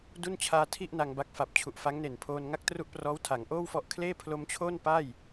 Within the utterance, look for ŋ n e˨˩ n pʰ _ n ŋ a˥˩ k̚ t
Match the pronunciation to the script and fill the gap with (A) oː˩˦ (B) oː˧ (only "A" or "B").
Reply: B